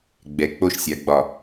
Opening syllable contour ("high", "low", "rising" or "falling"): low